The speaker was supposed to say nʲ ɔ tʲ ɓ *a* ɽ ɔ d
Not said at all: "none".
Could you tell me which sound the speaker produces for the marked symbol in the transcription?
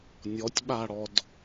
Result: a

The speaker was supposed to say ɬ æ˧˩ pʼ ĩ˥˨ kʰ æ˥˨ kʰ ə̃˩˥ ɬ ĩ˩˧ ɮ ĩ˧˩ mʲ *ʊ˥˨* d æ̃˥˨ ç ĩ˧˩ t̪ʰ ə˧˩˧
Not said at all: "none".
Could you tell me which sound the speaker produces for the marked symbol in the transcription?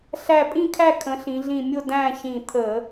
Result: ʊ˥˨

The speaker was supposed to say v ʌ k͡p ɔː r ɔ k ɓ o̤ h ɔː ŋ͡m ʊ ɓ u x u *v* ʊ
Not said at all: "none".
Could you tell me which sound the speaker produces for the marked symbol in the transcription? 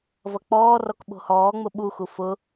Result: f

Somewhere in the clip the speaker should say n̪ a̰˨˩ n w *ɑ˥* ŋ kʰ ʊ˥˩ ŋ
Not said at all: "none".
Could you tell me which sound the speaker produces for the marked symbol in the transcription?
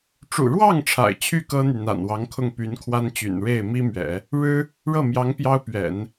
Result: ɑ˧˥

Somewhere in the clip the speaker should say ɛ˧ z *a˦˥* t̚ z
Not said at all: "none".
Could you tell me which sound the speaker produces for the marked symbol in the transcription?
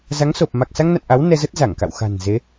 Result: ə˦˥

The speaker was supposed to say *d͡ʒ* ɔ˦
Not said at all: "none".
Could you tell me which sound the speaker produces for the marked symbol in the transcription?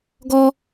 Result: ɡ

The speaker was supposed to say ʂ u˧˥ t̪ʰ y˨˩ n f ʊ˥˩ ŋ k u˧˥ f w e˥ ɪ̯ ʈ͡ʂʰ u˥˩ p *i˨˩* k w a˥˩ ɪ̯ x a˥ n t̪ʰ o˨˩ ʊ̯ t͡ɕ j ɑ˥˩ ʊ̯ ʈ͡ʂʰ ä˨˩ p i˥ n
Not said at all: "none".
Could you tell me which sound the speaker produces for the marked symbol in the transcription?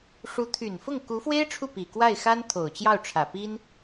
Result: i˨˩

